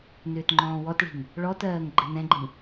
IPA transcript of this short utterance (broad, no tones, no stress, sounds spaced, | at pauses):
n ʏː t ŋ͡ǃ ɔ̃ː w ɔ t ɭ i̤ ŋ | ɭ ɔ t ɜː ŋ ɡ͡ǃ ɘ n ɛ̃ ɡ͡ǃ ĩ